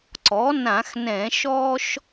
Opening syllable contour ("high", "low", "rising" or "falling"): rising